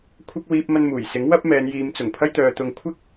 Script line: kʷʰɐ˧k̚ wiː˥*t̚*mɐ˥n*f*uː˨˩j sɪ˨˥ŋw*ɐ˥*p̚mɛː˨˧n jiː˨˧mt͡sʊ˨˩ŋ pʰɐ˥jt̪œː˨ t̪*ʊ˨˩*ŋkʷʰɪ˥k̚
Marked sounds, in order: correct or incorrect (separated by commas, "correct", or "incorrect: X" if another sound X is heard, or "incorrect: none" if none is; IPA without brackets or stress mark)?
incorrect: p̚, incorrect: m, correct, incorrect: ʊ˨